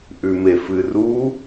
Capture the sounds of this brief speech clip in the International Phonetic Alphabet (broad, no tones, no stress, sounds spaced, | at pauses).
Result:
ʔ ʉ m e f ɨ r u